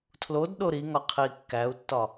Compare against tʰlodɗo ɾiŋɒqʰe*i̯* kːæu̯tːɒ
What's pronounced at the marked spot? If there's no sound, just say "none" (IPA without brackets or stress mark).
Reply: i̯